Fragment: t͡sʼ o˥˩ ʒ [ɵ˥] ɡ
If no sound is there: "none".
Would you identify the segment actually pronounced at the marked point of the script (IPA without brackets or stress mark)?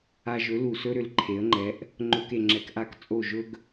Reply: ɵ˥